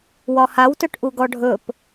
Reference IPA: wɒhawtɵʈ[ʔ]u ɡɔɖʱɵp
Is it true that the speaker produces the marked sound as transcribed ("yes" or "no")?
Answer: yes